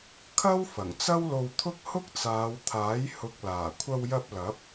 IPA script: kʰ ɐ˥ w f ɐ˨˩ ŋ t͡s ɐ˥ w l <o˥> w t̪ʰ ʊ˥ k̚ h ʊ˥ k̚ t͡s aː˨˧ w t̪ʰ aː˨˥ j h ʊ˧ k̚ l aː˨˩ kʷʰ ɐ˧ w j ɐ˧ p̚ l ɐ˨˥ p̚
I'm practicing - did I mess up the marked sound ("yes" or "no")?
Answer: yes